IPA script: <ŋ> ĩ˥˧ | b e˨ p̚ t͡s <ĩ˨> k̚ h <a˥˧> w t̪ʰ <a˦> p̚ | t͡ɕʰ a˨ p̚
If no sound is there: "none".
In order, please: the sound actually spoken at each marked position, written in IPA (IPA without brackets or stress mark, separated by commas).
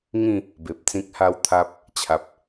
ŋ, ĩ˦, a˦, a˦